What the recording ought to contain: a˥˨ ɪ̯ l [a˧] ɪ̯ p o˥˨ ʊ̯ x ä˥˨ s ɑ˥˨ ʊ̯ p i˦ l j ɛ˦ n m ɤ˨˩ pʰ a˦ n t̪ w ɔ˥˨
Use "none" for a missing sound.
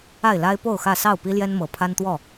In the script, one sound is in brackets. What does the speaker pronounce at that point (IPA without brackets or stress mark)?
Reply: a˦